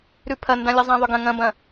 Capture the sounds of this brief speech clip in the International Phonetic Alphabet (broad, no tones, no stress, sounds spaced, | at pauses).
ɾ ʉ pʰ ɐ n d ã lʲ ə zˤ ã ðˤ ʏ ɡ ɐ̃ ŋ ɐ̃ b ɐ̃